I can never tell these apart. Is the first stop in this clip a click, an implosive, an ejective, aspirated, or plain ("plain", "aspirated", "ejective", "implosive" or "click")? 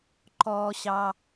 click